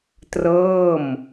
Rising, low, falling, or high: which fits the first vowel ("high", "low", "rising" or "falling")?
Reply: falling